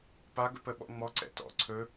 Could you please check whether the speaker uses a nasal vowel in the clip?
no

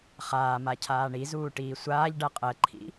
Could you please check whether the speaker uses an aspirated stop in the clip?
yes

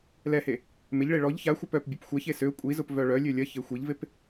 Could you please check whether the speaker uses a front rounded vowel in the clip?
yes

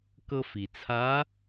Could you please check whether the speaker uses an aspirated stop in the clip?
yes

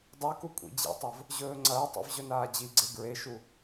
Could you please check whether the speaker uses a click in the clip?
yes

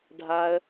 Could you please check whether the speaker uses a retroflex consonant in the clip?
yes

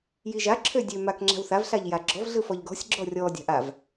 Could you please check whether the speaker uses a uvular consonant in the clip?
no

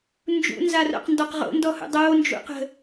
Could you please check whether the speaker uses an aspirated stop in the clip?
no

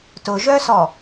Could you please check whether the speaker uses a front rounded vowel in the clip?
yes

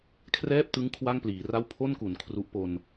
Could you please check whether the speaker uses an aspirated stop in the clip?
yes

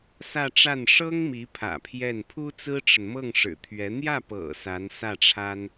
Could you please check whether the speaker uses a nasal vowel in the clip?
no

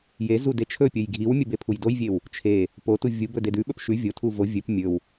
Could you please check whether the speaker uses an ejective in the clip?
no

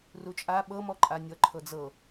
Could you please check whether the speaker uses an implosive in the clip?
yes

